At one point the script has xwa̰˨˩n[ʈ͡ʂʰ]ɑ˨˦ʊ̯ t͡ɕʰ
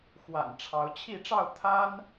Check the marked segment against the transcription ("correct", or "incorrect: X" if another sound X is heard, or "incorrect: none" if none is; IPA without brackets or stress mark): correct